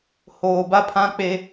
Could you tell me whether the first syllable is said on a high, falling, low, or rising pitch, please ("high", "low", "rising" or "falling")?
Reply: low